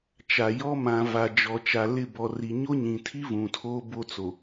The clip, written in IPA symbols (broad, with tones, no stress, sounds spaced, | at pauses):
t͡ʃ a˨ j ɔ˦ m ã˨ v a˨ d͡ʒ ɔ˨ t͡ʃ a˨ l ɪ˦˨ b ɔ˨ r i˨ ɲ o˦ ɲ ĩ˨ tʰ i˦ v ũ˨ tʰ oː˦ b o˦ t͡s o˨